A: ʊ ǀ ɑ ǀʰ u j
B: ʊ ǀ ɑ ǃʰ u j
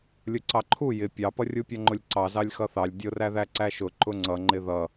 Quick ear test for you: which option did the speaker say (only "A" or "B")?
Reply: B